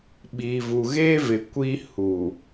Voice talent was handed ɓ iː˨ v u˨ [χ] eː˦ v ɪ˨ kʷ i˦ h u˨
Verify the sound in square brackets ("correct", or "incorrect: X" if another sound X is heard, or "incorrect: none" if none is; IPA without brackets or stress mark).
incorrect: ɣ